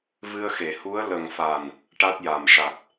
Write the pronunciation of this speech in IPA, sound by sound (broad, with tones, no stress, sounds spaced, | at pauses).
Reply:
v ɨ˧ ə̯ x e˨˩˨ h u˧˥ ə̯ l ə˨˩ ŋ f a˨˩ n | ʈ a˦˥ t̚ j a˨˩ m ʂ a˨˩ t̚